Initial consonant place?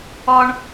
retroflex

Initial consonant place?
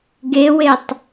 velar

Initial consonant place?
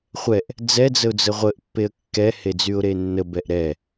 uvular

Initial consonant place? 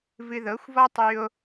labial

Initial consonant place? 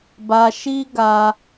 labial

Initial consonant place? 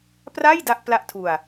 labial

